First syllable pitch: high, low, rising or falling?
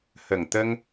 low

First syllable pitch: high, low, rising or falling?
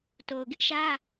low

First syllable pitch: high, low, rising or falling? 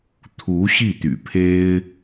rising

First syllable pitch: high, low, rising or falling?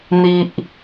low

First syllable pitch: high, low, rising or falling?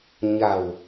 low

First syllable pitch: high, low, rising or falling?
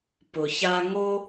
low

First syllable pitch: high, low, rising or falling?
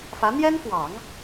rising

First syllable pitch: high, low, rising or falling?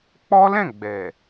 high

